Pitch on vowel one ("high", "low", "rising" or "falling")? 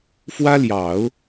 high